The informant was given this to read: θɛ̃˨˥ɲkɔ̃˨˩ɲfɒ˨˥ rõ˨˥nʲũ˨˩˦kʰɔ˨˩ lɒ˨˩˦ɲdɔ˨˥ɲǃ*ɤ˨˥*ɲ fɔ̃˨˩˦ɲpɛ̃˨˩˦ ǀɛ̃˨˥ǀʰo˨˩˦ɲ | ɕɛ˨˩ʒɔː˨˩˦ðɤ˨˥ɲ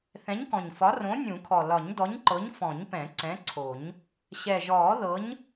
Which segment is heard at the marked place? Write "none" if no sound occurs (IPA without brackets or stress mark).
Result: ɤ˨˥